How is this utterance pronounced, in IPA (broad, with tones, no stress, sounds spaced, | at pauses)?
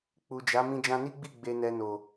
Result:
k͡p u˨ d͡ʒ a˨˦ m ĩ˧ d͡ʒ ã˧ n i˦ ɡ͡b i˦˨ ɡ͡b e˧ n ɛ˧ n o˨